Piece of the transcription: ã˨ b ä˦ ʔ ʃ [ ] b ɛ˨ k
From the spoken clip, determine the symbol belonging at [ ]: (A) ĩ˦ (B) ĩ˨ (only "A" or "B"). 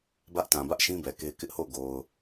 A